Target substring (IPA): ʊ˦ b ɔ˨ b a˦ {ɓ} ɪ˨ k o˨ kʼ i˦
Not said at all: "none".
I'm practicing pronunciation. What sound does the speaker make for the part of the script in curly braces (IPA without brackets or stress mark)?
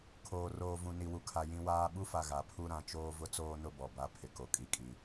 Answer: pʰ